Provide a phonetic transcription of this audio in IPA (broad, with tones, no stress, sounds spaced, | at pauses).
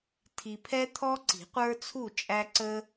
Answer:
tʰ i˨ pʰ ɛ˦ t̪ʰ ɔ˦ ǀ i̤˨˩˦ qʷ ə˞˦ t͡sʰ u˥˨ t͡ʃʼ æ˦ ǀ ə˦